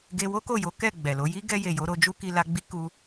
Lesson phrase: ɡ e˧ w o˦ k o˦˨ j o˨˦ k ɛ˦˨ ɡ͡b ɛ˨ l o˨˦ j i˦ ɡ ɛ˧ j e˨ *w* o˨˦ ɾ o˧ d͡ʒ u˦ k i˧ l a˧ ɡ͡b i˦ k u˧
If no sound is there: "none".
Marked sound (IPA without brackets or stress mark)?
j